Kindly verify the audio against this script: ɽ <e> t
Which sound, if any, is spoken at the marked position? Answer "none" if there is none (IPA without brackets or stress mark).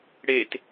e